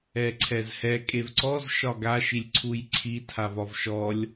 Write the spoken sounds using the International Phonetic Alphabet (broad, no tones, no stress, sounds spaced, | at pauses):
ɛ ǀʰ ɛ z h ɛ kʼ e v ǀ ɔ z ʃ ɒ ɡ a ʃ i lʲ ǀʰ u j ǀʰ i tʰ a v ɒ v ʃ ɔ lʲ